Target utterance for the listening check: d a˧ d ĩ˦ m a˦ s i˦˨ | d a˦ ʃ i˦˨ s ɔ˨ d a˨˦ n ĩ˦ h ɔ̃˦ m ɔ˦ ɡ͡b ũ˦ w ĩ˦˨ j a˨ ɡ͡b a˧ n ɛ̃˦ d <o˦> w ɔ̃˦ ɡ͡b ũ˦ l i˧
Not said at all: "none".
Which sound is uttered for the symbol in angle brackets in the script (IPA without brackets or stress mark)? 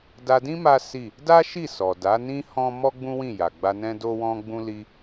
o˦